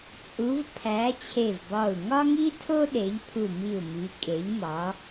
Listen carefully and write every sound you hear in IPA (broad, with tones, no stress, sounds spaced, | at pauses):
t͡sʼ u˨˦ v pʰ æ˨˦ t͡ɕʰ e˧˩ v b ɒ˧˩ u̯ ŋ ɒ˥ ŋ i˥ tʰ o˥ ɗ e˨˦ ʎ pʰ u˧˩ m i˧˩ u̯ m i˨˦ kʼ e˨˦ ʎ m ɒ˨˦